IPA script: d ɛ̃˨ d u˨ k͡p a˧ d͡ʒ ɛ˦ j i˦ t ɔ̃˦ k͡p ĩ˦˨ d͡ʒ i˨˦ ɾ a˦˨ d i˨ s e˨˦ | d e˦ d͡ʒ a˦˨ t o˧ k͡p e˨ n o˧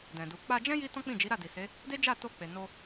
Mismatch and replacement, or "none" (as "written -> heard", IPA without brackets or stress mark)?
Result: ɛ˦ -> ɛ̃˦